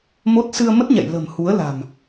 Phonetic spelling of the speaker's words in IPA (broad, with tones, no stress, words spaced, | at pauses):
mo˦˥t̚ sɨ˧ə̯mə˦˥t̚ɲɛ̰˧˨j lə̤˨˩mhu˨˦ə̯la̤˨˩m